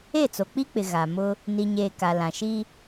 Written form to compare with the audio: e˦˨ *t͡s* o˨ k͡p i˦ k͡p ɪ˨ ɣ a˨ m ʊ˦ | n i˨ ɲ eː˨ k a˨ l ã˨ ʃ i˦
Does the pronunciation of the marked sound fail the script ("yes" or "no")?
no